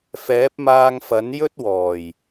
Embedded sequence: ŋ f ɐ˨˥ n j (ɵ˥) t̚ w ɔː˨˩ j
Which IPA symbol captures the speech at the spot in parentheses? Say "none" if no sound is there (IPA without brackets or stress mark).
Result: ɵ˥